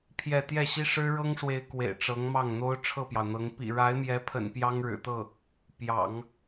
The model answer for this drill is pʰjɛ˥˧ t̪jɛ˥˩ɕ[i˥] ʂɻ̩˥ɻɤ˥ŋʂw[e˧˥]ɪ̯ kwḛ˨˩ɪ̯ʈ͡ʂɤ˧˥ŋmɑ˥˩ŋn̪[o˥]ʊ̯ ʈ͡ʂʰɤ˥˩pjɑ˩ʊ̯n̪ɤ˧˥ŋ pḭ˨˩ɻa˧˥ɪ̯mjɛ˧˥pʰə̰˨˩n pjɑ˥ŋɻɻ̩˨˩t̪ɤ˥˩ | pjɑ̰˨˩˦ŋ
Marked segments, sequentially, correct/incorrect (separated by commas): correct, correct, correct